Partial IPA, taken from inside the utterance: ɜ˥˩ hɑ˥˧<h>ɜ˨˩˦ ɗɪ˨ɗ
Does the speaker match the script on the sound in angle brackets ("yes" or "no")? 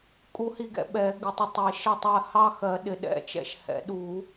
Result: no